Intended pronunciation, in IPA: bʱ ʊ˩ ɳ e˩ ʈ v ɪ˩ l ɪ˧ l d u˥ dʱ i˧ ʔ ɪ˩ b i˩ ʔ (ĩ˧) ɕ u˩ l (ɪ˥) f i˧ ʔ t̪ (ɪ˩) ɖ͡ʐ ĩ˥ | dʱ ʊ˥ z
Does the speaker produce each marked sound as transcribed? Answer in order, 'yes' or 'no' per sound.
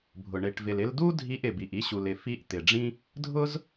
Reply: no, no, yes

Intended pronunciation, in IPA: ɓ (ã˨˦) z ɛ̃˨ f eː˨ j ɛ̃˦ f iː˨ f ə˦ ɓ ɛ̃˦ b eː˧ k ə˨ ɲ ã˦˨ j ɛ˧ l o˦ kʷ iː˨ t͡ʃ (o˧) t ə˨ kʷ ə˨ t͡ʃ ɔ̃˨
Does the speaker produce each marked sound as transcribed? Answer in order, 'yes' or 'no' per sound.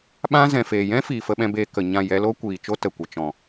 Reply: no, no

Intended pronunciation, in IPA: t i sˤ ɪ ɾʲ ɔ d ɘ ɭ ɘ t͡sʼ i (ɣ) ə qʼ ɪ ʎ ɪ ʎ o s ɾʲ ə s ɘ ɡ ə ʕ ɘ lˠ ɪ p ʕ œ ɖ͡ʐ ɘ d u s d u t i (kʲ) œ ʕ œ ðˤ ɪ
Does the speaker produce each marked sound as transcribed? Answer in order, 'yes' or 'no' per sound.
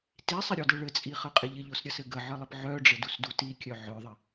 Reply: no, yes

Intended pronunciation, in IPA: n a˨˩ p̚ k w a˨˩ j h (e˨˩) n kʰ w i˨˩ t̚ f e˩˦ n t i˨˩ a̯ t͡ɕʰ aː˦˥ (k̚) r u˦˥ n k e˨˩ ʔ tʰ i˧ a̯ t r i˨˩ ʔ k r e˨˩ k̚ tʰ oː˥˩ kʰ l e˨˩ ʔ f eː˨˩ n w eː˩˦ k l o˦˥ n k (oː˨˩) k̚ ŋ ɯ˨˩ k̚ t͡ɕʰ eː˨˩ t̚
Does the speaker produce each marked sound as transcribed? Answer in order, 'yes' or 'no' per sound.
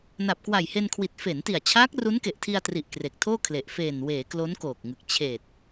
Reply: no, yes, yes

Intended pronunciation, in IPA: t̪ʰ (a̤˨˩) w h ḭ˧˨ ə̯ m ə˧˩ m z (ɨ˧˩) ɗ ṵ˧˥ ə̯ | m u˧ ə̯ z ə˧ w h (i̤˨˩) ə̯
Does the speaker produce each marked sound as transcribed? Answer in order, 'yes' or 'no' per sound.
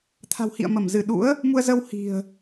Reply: yes, yes, yes

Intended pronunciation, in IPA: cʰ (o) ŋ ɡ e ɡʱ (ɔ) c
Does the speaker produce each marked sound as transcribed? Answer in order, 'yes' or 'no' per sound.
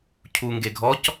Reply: no, yes

